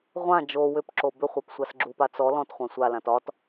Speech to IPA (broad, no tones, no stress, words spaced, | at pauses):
ʁʷã d͡ʒo wʏpǁo bʏχʷap sʷasɡ͡ǁupa t͡sɔ lɔ̃tχʷã sʷalãt ɒt